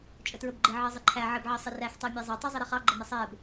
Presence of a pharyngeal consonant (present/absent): present